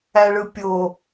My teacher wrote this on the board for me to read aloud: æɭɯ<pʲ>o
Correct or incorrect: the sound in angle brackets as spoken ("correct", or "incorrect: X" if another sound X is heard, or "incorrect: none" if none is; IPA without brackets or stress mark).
correct